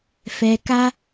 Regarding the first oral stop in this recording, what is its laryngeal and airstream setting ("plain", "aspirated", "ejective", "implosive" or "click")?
plain